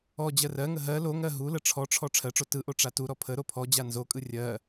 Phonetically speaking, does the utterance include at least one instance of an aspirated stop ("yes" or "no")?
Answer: yes